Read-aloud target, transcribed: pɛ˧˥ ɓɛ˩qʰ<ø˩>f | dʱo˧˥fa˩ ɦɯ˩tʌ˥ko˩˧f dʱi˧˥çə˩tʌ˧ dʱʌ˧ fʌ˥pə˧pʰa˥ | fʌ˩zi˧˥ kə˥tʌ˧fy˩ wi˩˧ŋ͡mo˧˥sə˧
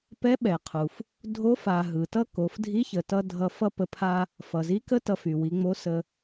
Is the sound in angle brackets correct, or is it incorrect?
incorrect: u˩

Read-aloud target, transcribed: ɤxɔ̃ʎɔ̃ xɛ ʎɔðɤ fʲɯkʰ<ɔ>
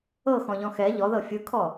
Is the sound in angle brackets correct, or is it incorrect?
correct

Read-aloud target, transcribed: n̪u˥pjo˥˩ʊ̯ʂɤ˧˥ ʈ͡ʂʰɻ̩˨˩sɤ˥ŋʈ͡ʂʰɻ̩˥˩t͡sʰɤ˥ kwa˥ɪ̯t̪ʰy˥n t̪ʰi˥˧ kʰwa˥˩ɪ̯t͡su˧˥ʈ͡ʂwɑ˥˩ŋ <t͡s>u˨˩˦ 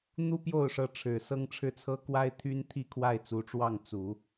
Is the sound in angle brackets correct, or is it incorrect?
correct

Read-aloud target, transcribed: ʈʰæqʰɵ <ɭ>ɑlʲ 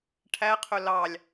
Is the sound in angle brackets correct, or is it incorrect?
incorrect: l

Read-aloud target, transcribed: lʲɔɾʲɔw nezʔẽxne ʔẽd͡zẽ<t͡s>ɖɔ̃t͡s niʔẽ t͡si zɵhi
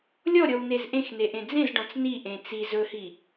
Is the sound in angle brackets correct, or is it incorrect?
incorrect: z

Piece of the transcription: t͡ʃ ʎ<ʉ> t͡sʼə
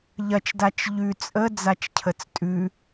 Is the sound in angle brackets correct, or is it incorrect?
correct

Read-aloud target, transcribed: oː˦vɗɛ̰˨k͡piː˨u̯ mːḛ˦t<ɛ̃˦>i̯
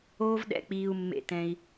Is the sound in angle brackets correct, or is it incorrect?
correct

